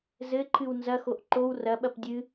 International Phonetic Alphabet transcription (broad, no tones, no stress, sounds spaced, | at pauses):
z ɘ ǃʰ ɨ w n z ɐ x o ʔ ǃ o w r ɐ ɓ ɐ p dʲ ɨ